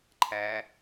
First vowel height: low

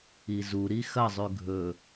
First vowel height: high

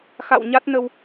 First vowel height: low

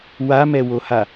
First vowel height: low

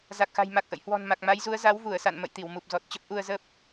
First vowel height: low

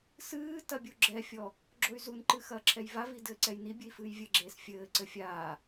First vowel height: high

